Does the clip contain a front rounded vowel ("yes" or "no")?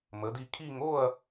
no